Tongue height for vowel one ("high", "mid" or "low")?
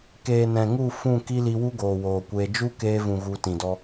mid